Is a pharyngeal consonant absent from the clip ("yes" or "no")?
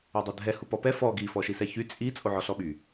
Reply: no